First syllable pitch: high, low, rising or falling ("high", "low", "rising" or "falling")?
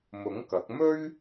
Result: rising